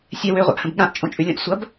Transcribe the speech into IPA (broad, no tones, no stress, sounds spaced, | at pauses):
sʲ ɛ w ø ʁʷ a̰ ʔ h ə̃ b ɠ ã ʔ t͡ʃʼ õ t͡ʃʼ ʉ lʲ õ ʔ sʷ ɐ b